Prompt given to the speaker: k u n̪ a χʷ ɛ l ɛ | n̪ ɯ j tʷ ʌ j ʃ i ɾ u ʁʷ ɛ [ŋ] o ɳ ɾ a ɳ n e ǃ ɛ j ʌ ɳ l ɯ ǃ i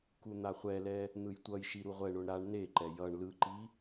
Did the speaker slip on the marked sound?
yes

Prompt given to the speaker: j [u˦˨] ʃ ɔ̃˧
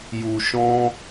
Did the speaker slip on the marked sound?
yes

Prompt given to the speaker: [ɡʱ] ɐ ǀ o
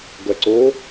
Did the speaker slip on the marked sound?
yes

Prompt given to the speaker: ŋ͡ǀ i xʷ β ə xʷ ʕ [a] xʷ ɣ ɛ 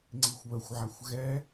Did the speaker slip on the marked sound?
no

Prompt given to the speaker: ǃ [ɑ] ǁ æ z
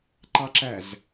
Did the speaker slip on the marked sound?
no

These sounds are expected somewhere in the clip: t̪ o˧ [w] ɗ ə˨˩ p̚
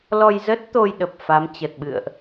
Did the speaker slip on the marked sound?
yes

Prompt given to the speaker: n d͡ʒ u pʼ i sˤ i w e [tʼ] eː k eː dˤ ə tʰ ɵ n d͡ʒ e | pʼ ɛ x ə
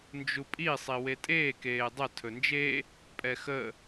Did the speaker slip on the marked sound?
no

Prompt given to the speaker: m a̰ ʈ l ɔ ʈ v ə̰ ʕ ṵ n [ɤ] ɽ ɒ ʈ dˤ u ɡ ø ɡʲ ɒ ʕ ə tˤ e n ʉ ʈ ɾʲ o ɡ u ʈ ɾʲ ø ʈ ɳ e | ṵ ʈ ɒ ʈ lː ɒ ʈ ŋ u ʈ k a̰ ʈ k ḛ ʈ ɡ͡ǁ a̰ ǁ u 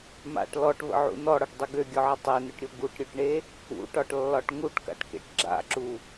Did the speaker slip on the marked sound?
yes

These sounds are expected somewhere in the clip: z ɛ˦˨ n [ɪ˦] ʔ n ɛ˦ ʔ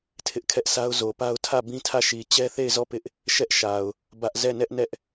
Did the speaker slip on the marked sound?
yes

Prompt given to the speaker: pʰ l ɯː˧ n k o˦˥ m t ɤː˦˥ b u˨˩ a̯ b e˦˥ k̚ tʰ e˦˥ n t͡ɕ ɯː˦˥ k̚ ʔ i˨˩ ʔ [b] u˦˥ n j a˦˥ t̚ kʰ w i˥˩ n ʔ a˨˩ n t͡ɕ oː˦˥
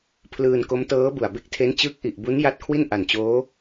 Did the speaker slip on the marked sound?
no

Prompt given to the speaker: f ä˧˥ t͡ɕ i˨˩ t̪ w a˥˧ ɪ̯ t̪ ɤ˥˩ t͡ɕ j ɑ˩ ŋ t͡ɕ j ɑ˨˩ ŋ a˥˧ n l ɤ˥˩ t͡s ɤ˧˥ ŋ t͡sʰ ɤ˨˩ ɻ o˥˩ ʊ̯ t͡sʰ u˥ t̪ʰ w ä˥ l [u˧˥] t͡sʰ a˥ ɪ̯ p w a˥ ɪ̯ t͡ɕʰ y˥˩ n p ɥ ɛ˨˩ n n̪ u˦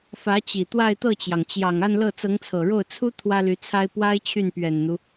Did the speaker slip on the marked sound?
yes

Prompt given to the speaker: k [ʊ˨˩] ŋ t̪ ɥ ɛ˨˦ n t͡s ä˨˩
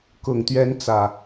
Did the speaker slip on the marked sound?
no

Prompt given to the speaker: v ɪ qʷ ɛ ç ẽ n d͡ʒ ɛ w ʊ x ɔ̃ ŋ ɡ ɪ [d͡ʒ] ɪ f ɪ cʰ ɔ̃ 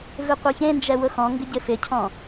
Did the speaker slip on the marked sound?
yes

